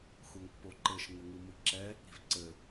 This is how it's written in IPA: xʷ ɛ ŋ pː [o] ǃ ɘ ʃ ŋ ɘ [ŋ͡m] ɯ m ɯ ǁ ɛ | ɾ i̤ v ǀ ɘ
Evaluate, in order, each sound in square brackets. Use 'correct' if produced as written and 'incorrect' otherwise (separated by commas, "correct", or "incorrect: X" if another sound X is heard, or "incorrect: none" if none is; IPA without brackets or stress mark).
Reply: correct, incorrect: ŋ